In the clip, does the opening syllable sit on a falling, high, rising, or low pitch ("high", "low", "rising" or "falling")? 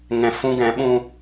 low